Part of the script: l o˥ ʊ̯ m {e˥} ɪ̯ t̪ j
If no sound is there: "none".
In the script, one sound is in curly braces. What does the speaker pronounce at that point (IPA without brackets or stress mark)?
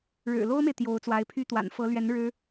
e˨